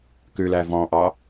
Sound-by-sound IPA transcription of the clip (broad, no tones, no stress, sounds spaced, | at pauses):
k ʉ l æ v ɔ̃ ʔ ɑ